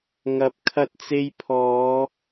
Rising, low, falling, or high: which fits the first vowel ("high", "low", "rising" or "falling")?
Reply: rising